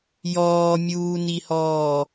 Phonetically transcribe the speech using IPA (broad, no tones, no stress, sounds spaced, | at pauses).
j ɔː mʲ uː n i h ɔː